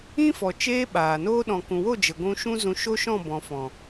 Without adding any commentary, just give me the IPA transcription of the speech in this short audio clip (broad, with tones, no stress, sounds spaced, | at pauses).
ĩ˦ f ɔ˨ t͡ʃ eː˧ ɓ aː˨ n oː˦ ɗ ɔ̃˨ k ũ˨ w o˦˨ d͡ʒ ə˨ ɡʷ ũ˧ ʃ ũ˦ z ũ˧ ʃ o˦ ʃ ɔ̃˦˨ b ɔ̃˨ f ɔ̃˨